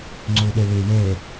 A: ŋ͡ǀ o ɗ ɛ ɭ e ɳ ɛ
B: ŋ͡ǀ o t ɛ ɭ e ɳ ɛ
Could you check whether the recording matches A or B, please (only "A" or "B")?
A